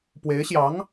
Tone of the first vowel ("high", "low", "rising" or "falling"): rising